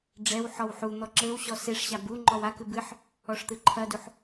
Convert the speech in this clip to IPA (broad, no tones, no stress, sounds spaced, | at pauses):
ɖ͡ʐ ɛ w ħ ɔ w ħ u n̪ ɔ ǁ ɘ w ɕ ɔ s e ʂ ɕ a b u ŋ͡ǃ ɔ w a k ɨ b ɨ ħ | ɔ ʂ t̪ ɨ ǃʰ ɐ d u ħ